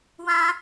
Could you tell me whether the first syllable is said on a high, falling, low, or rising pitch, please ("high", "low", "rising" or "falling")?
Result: high